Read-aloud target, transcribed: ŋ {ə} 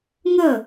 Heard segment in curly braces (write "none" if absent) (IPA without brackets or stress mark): ə